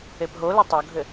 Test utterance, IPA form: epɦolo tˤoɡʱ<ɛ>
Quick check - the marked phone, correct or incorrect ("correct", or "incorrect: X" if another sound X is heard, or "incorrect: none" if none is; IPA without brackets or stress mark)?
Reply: incorrect: ɘ